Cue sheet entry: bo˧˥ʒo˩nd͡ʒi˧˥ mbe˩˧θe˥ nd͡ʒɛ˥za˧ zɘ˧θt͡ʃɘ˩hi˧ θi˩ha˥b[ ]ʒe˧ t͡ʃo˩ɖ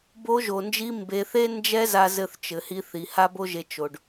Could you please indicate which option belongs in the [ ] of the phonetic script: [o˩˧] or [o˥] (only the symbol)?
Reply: o˥